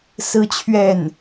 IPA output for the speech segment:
sɹ̩˥t͡ɕʰɥɛ˥˩n

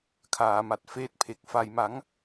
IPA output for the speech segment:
kʰaː˩˦ma˨˩t̚ feː˦˥t̚pʰe˨˩k̚ fa˨˩jma˩˦ŋ

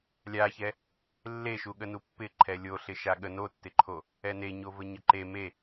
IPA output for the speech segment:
lʲaçɛ | lːeʃuɠənu pːɪǃʰɛ lʲoɬɪ ʃaɠə notːɪǃʰo | ɛne ɲovəɲəǃe me

